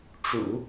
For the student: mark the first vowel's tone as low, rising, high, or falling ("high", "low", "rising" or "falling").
low